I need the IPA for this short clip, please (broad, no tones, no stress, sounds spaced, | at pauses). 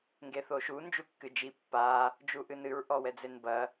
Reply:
ŋ ɡ e θ o ʃ u n d͡ʒ u kː ɨ d͡ʒ i pː a | d͡ʒ u ʔ ɨ n ɨ ɹ ʔ ɔ w ɛ d͡z e n b ɐ